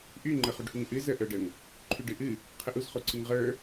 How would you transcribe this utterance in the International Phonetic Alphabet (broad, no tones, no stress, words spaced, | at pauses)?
ʔy ŋ͡ǃəχuɖhuŋʔɨ zəʔə˞ɖəŋ | ǃʰyɖɨʔɨ | qʰəʔuzχoǀɨŋ ʁə˞